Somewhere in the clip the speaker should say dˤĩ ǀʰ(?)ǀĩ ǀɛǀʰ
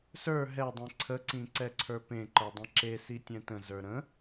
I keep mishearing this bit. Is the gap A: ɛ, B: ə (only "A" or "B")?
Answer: B